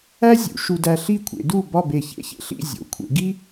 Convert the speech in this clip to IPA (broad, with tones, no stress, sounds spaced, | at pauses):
æ˥ zʲ ṵ˩˧ ʃ u˧ d æ˧ ɬ i˥˧ kʷʰ ḛ˩˧ d u˥˧ b ɒ˥˧ b e˧˩ ç ḛ˥ ç ḛ˧ ɬ ḭ˥˧ zʲ o̰˩˧ kʷʰ ḛ˩˧ ɡ i˥